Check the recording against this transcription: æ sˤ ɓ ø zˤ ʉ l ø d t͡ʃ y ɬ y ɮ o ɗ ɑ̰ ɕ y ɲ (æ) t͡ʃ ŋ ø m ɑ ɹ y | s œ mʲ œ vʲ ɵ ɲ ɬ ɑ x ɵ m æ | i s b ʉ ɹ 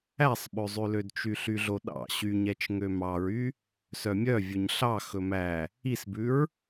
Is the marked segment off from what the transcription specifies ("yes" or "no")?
yes